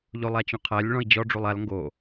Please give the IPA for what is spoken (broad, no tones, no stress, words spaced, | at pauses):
ʎolˠat͡ɕõqʰælʲ ɭɔ̃i̯d͡ʑɔ ɖ͡ʐulˠal ŋɡo